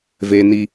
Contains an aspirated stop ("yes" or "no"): no